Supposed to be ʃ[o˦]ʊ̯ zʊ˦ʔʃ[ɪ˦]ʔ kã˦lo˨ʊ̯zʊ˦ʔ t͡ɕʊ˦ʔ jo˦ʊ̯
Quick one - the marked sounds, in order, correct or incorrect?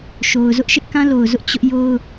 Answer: incorrect, correct

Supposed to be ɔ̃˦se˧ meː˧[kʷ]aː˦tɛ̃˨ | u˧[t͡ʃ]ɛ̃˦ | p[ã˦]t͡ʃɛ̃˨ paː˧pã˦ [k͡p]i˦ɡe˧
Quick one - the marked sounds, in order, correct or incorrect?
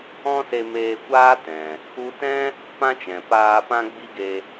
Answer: correct, incorrect, correct, incorrect

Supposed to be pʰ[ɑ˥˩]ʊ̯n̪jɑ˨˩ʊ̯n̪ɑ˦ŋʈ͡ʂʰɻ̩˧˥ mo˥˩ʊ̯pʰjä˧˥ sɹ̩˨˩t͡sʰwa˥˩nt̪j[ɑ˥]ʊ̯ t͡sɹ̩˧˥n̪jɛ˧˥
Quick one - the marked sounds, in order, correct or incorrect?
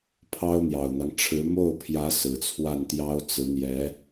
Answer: incorrect, correct

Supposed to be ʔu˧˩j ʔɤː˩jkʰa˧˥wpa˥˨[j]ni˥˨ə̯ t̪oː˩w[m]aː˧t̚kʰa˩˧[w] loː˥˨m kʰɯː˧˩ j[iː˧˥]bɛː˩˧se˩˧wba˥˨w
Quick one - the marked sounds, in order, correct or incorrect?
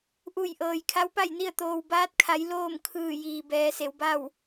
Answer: correct, incorrect, incorrect, incorrect

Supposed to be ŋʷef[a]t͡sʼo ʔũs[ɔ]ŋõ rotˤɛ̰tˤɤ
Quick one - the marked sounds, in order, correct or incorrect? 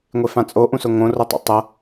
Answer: incorrect, incorrect

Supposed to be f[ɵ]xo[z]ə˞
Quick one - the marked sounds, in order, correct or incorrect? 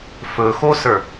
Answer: correct, incorrect

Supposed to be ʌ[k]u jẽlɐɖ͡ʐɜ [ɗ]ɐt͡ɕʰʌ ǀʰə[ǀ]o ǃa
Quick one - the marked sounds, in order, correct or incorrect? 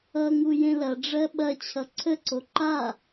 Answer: incorrect, incorrect, correct

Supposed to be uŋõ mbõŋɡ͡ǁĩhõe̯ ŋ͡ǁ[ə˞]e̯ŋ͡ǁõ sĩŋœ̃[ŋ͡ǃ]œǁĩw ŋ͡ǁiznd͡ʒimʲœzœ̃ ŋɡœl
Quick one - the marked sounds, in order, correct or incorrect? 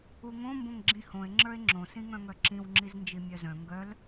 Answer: correct, incorrect

